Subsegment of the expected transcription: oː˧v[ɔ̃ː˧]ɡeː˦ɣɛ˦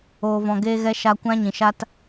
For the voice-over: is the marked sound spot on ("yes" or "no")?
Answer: no